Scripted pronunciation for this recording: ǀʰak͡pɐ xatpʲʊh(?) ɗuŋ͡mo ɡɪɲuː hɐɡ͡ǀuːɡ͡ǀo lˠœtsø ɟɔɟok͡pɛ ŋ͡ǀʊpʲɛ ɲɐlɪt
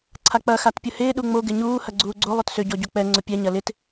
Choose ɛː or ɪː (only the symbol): ɪː